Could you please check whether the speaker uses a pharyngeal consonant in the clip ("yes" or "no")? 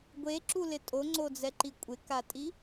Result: no